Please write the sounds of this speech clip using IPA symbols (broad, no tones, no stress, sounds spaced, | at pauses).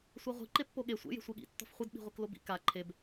sʷ a ʁʷ i̤ ǃ e pː o ɠ e sʷ ḛ j e̤ sʷ i ɠ ḭ tː ɔ̤ f χʷ i d ɓ i̤ ʁʷ i k l o b ḭ k a ǃʰ e b